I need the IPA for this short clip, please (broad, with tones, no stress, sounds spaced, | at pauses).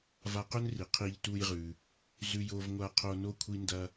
v a˧ q ɵ˥ n r i˩ qʰ i˧ ʎ t u˧ j ʁ ʉ˩ | z ʉ˧ j o˧ v ŋʷ a˧ qʰ o˧ n o˥ kʷʰ i˥ n d ɐ˥